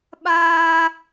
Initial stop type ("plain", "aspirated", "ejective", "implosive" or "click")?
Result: implosive